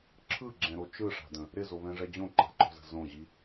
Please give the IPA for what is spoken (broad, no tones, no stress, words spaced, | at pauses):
ǁʰɯɡ͡ǁɛ̃ɾo t͡ʃɯʂa̤də̃ | ɾɪzoβɛ̃ʐɛ d͡ʑõǃa̤ǃɔ̤zə̤ zõʑi